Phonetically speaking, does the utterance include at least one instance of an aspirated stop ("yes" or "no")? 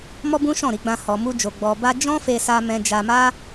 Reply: no